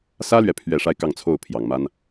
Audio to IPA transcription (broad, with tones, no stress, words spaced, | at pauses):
sä˥lɥɛ˨ pʰɥɛ˥˩ʂa˥ɪ̯kɑ˥˧ŋt͡sʰo˥˩ʊ̯ pʰjɑ˨˩ŋma˥n